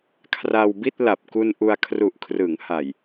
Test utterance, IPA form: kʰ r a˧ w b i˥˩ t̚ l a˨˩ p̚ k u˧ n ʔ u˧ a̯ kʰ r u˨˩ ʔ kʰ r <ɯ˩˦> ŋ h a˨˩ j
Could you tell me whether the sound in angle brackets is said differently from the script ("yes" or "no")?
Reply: no